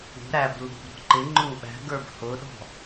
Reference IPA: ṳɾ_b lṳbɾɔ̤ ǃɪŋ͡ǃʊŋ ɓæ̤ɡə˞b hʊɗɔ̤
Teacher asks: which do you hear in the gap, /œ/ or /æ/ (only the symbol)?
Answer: æ